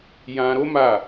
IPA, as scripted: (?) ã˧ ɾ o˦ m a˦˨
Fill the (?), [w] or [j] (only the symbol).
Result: j